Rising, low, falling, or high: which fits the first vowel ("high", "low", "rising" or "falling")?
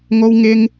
high